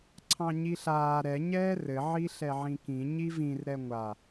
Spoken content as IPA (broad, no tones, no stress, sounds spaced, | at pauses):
ǀʰ ɑ̃ ɲ i ɬ aː ɾ ɛ ɲ ɛː r ɘ ʕ i ɬ ɛ ʕ ĩ k ĩ ɲ i v ĩ r ɾ ɛ ŋʷ a